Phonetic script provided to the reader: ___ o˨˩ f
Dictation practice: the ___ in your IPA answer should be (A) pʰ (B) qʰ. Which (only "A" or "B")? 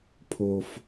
A